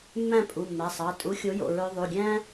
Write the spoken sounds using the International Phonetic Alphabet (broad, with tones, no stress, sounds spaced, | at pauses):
mː æ̃˥˨ pʼ u˩˧˩ mː æ˩˧˩ sˤ ɑ˩˧˩ tʼ u˨˥ xʲ o˨˥ j o̰˩˧˩ ɹ ø˧ ðˤ u˩˧˩ ɡʲ æ̃˥